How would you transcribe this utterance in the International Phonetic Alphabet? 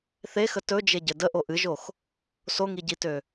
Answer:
θ e x ə t ɵ d͡ʒ e ɟ ɘ d ə ʔ o ʔ ɨ ʒ o x | s o ŋ i ɟ i t ø

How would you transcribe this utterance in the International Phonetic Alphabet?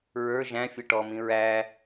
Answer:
ɹ ə˞ ʒ æ̃ fʲ ʌ ʈ ɔ m ĩ ɹ æ

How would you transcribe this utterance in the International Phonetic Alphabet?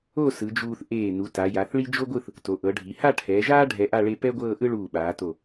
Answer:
o˥˧ s ɯ˩˧ d͡ʒ uː˧ θ ʔ eː˧˩ n u˩˧ t a˩˧ j a˩˧ θ ɭ i˥ d͡ʒ o˥ ɡʷ ɯ˥˧ θ | t o˩˧ ʔ ɤ˩˧ ɖʱ i˩˧ h a˥˧ ʈʰ ɛː˩˧ ʒ aː˥ ɖʱ ɛ˧ ʔ a˥˧ ɭ e˧ p ɛ˥ ɡʷ ɤː˥˧ ʔ ɯ˥ ɭ uː˧˩ ɓ aː˩˧ t o˧˩

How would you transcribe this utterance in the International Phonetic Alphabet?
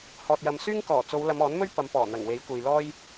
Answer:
h ɔː˨ t̚ j ɐ˨ m s yː˥ ŋ k ɔː˨˩ t͡s o˨˧ w l ɐ˨˧ m ɔː˨˥ n m ɵ˥ ɥ p ɐ˨˧ m p ɔː˨˩ n̪ ɐ˨˩ ŋ w e˨˥ j kʷ e˨ j l ɔː˥ j

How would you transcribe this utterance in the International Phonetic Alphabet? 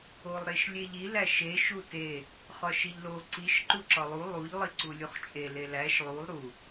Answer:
o lˠ ɾ e ʃ lʲ e ʎ i l æ ʃ e ʃ u t e | χ ɒ ʃ i ʎ l o ǀ i ʃ ǃ u ǁ ɒ lˠ u lˠ u ʎ lˠ i ǀ u lʲ u χ t͡ʃʼ e l e l æ ʃ lˠ u lˠ ɾ u

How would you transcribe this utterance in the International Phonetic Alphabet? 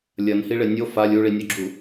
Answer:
lʲ ɐ n h i ɭ e nʲ o f a lʲ u ɭ i nʲ o ɡ͡ǁ u

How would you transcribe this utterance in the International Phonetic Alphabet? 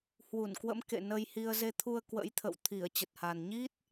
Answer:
h w u˧˩ n k w ə̰˧˥ m k ḛ˧˨ n ə˧ j h i˧ ə̯ z e˧ t̪ʰ u˧ ə̯ k w ə̰˧˥ j t̪ʰ ə̰˧˨ w t̪ʰ i˧˩ ə̯ t͡ɕ ə˨˩ t̚ h a˨˩ n ɲ i˦˥ t̚

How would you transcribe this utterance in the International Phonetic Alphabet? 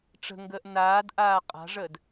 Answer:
ʈ͡ʂ ə̤ ŋ ɡ əː ʔ n aː d ʔ aː qʼ a̤ ʐ əː d

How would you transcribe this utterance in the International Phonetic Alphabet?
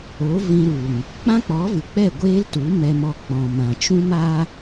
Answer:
o˨˦ v ĩ˧ ɾ u˨ ŋ | k͡p ã˦ k͡p ɔ˨˦ v ɨ˨ k͡p ɛ˦˨ ɡʷ eː˦ l t u˨˦ m ɛ˧ m ɔ˧ k͡p ɔ̃˨ m ã˨ t͡ʃ ũ˦ m a˦

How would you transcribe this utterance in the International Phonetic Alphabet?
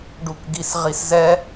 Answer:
ɖ u k ɡ i s ʁ i s z ɛ

